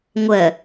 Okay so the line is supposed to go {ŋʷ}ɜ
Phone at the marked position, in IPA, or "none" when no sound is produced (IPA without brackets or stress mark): ŋʷ